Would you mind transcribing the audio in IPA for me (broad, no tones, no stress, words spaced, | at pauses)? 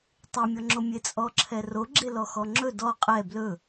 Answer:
tˤemʲɔŋ͡ǁo mʲet͡sʼɔǁʰɛro ɡ͡ǁelɔxɔŋ͡ǁɵ dɔ qʼɛ blɵ